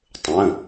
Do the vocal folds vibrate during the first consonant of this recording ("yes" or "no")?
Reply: no